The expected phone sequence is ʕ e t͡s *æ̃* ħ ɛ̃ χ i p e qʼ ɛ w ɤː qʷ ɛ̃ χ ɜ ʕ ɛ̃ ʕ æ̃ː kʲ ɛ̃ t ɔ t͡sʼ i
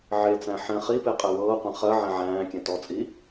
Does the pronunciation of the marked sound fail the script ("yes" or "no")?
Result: no